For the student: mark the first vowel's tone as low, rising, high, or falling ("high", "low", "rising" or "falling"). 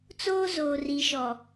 high